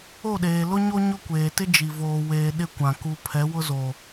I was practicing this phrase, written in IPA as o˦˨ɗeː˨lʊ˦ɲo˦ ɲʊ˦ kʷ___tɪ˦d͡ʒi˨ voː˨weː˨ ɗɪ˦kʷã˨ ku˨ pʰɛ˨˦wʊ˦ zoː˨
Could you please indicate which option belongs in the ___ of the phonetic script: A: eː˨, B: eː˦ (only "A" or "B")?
A